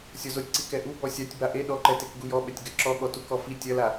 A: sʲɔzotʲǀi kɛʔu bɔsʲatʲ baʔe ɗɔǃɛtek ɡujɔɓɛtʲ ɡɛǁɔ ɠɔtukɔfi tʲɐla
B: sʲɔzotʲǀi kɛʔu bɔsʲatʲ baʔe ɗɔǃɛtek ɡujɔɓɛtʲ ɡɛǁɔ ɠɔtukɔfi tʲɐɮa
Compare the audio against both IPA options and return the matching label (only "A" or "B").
A